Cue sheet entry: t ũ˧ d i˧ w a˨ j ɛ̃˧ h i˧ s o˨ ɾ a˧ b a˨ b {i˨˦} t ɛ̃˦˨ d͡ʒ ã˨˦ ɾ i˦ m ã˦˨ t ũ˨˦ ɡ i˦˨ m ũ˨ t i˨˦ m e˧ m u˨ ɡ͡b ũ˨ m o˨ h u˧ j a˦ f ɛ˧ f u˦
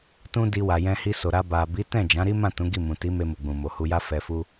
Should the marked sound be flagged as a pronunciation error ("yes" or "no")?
no